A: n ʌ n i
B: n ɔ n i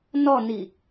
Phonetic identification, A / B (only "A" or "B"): B